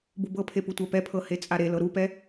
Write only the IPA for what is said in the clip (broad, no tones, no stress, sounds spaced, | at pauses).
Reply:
b u b ɤ pʰ e p u tʷ a p ɛ pʰ ɤ h e t͡sʼ a ɾ e l ɤ ɾ u p ɛ